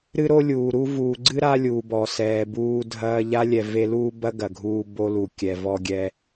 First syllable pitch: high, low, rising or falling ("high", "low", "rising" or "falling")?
high